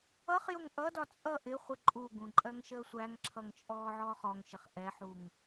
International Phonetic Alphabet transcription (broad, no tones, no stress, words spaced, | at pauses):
ʌχjʊŋ ʔʌdɒ t͡sʼʌ ʔɪχʷɪ ǃʼuɡũ ǃʼɜŋʃəːsʷæŋǁʰʌŋ t͡ʃʼɔːʕɔːχɔŋʃɪχ ʔɛħuŋ